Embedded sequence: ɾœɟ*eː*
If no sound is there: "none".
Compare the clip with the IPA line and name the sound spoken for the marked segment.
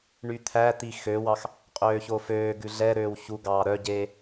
eː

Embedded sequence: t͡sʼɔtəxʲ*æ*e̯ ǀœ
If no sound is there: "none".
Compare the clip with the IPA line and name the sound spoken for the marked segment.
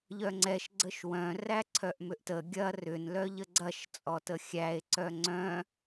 æ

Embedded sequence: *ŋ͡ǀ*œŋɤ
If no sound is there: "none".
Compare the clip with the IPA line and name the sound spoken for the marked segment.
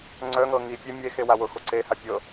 ŋ͡ǀ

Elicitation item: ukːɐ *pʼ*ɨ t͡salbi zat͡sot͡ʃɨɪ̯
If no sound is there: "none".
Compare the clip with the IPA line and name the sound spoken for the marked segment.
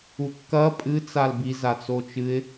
pʼ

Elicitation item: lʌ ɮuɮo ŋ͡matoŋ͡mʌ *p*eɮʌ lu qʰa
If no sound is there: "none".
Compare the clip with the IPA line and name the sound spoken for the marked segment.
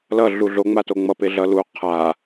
p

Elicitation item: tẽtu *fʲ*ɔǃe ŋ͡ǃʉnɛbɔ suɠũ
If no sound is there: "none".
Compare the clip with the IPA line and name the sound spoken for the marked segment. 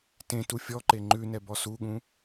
fʲ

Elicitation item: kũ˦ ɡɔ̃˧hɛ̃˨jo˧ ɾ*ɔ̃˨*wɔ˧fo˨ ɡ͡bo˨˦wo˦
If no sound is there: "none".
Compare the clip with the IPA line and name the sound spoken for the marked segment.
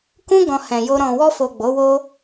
ɔ̃˨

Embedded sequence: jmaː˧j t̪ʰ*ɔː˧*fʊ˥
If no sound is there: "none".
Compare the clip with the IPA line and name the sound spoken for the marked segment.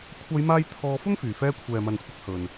ɔː˧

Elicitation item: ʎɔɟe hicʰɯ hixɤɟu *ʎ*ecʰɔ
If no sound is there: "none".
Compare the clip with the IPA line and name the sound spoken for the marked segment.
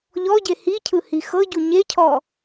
ɲ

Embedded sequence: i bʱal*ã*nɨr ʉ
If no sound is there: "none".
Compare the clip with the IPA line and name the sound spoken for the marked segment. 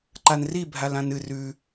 ã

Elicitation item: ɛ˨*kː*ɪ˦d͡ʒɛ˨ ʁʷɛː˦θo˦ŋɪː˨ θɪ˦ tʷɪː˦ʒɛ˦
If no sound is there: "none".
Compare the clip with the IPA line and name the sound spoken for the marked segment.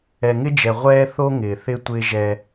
ŋ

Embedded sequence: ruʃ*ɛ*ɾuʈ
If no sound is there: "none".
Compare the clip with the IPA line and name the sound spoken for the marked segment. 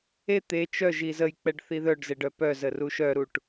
œ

